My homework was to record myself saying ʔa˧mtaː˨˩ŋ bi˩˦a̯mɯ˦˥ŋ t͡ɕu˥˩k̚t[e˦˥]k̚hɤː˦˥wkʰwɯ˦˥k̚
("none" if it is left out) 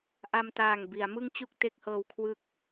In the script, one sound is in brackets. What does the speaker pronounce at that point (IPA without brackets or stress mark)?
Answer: e˦˥